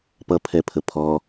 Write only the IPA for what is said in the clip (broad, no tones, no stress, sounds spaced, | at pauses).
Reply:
p ʌ pʰ ɛ pʰ ə pʰ ɔ